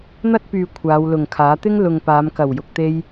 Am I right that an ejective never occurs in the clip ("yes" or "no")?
yes